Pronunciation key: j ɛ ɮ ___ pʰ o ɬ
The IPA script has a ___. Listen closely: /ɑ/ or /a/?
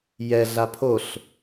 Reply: a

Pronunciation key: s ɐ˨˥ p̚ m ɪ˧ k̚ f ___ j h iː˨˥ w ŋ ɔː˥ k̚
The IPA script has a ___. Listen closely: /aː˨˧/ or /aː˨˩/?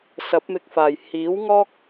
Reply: aː˨˩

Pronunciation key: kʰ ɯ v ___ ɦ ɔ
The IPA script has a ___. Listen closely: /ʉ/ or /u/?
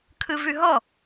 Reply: ʉ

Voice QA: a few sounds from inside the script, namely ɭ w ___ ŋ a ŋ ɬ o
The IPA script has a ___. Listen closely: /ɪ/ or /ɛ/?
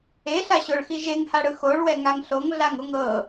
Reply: ɛ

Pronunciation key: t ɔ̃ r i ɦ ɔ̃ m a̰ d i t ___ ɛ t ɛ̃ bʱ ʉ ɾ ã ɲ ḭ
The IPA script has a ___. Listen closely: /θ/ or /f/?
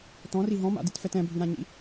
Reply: f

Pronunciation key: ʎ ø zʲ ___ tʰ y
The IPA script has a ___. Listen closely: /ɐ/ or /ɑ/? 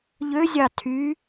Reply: ɑ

